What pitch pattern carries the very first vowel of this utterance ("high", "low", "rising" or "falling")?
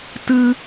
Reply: high